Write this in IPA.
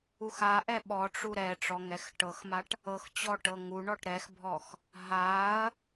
u x a ʔ ɛ ɓ ɔ ʈ͡ʂ u ɾ ɛ ʈ͡ʂ ɔ ŋ ɛ x ʈ ɤ x m a ʈ | ɤ x t͡ɕ ɔ ʈ ɤ ŋ u ɳ ɔ ʈ ɾ ɛ x bʱ ɔ x | ɦ a ɐ̯

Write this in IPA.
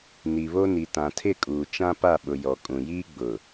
n i˨ β o˦ n i˨ t ã˨ tʰ ɪ˦˨ kʼ uː˨ t͡ʃ ã˦ p a˦˨ ɓ ʊ˨ j ɔ˨ kʼ ũ˨ j iː˦ ɡ͡b ʊ˨

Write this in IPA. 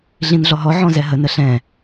ɮ ĩ n ɮ ɔ ɦ ɔ ʕ ɔ̃ z ɛ ɦ ə n ə ɬ ɛ̃

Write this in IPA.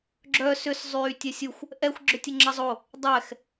ɡ͡ǁ œ s ʏ s zˤ yː tʲ ɛ sʲ u xʷ | ʔ ɛ xʷ ɡ͡ǁ ʏ tʲ ə ŋ͡ǁ ɐ zˤ o | dˤ ɛ x

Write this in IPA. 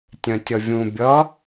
tʲ œ̃ tʲ ʌ vʲ ũ bʲ ʌ

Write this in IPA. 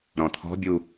ɾ ɔ̃ t̪ʰ ɔ̤ bʲ u

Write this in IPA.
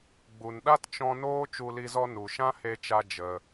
ɡ͡b u˨ n ɗ a˦ t t͡ʃ ɔ̃˧ n oː˦ t͡ʃ u˧ l i˧ z ɔ˧ n u˨ ʃ ã˦ h e˧ t͡ʃ a˧ d͡ʒ ə˧

